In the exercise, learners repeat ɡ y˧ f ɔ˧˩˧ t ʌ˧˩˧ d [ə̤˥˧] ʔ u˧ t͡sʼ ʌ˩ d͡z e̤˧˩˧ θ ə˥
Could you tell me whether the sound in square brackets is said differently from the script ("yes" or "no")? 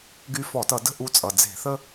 no